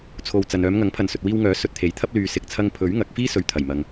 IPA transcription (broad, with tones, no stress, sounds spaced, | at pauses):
t͡sʰ o˨ w t͡s ɐ˨ n œː˨˧ m ŋ ɐ˨˥ ŋ pʰ ɐ˨ n s ɵ˨ t̚ w iː˧ w ŋ œː˨˥ s ɵ˧ t̚ t̪ʰ e˨ j t̪ʰ ɐ˥ p̚ l yː˨ s ɪ˨ k̚ t͡sʰ ɐ˧ ŋ pʰ ɵ˨˥ ɥ ŋ ɐ˨˥ k̚ f iː˥ s ɵ˨ ɥ t̪ʰ ɐ˨˩ j m ɐ˨ ŋ